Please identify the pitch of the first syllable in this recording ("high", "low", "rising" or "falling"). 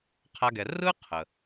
high